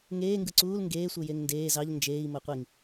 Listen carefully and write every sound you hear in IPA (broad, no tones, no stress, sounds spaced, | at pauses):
ŋ eː ŋ ɡ ɯ ǀ uː l ŋ ɡ eː sʷ ɯ j e ŋ n d eː z ɑ ʎ n d͡ʒ eː i̯ m o qʷ i ŋ